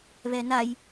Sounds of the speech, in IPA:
β ɛ n a j

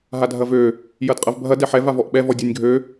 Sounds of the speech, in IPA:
ɦ a dʱ ɐ v ø | j ɐ d qʼ ɐ v bʱ ɐ d ɛ ħ ɛ v a v ɔ ʔ ɓ ɛ v ɔ dʲ ɔ nʲ ɡʱ ø

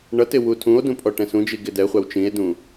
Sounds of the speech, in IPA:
ɳ ʌ t ɪ w u tʰ ũ o̯ d ũ pʼ ɔ ʈ ɛ̃ s ũ d͡ʒ i ɡ ɪ d ɛ χʷ æ w t͡ʃ ĩ e̯ d ũ

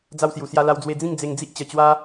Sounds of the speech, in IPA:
d͡z a˧ w s j u˨˩ s j a˧ l a˧ w d͡z w e˧ d͡z ĩ˥˧ ŋ d͡z e˧ ŋ d͡z i˦ ʔ t͡ɕ ə˨˩ t͡ɕ w a˧

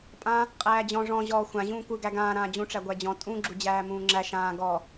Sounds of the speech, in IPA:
pʼ ã | qʼ æː d͡ʑ ɔ̃ ʐ ɔ̃ ʑ ɔː xʷ ã ʑ ũː kʷ ɯ ɡ æ ɡ ãː ɾ ãː d͡ʑ ũ ʈ͡ʂ æ ɡʷ æ d͡ʑ ɔ̃ tʼ ũ ɡ͡ǁ u d͡ʑ æː m ũː ŋ͡ǁ æ ʃ ãː ɡ ɔ

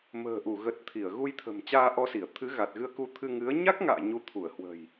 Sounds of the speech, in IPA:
m ə̤ː˨˩ ʔ u˧˩ ɣ ə˨˩ t̚ t̪ʰ i˧˩ ə̯ ɣ u˧ j t̪ʰ ə̤˨˩ m t͡ɕ aː˧ ʔ ɔ˧ s i˧˩ ə̯ t̪ʰ ɨ˨˦ ɣ a˨˩ t̚ ɣ ɨ˧ ə̯ k u˧ t̪ʰ ɨ˧ ŋ ɨ˨˦ ə̯ ɲ a˦˥ k̚ ŋ a̰ː˧˨ ɲ u˨˦ t̪ʰ u˧˩ ə̯ h w ə̤˨˩ j

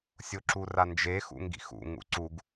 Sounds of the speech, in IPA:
sʲ o ǁ u r a n d͡ʒ e x ṵ ŋ ɡ ḭ x ṵ ŋ ṵ ǀ u ɡ

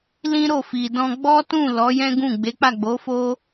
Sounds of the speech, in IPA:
l ĩ˦ ɾ o˦˨ f i˨ d ɔ̃˧ ɡ͡b ɔ˦ t ũ˦˨ l ɔ˨˦ j ɛ̃˦ ɡ ũ˦˨ ɡ͡b e˨˦ k͡p a˦˨ ɡ͡b o˨˦ f o˦

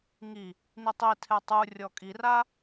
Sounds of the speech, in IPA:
ŋ i | n i tˤ i tʰ ɛ tˤ u rʲ ɔ kʼ i r a

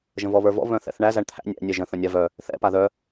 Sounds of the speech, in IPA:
ʒ ə̃ v ɔ β ə˞ v ɔ̰ β œ̃ θ ɛ̰ θ ɳ æ z æ ɳ t̪ʰ æ̰ nʲ æ̰ nʲ ɛ ʒ ə̃ θ ə̃ nʲ a v œ | θ ɛ̰ p a ð œ

